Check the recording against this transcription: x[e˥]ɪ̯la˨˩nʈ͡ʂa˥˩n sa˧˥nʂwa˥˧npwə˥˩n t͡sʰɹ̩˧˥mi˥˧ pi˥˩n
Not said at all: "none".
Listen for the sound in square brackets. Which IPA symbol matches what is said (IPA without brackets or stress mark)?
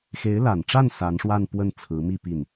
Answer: e˧˥